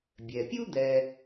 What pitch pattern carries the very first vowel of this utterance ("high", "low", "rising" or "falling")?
low